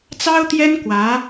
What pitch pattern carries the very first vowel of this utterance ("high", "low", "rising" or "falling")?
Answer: high